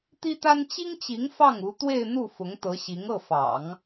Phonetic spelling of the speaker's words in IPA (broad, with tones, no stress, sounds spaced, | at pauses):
t̪ i˥ t̪ a˥ n t͡ɕ i˥ ŋ t͡ɕ i˧˥ ŋ f ɑ˥˩ ŋ u˧˥ t̪ w e˥˧ ɪ̯ n̪ u˥˩ f ʊ˧˥ ŋ t̪ ɤ˧˥ ɕ i˧˥ ŋ ɤ˥˩ f ɑ̰˨˩˦ ŋ